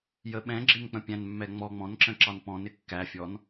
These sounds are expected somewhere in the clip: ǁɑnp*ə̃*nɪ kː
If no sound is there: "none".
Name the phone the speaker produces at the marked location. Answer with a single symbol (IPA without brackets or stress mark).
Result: ɔ̃